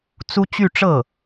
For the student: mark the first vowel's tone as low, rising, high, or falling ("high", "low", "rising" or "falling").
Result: high